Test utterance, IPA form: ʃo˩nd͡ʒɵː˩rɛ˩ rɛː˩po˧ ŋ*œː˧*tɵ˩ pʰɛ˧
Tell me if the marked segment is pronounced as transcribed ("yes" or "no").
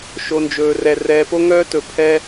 yes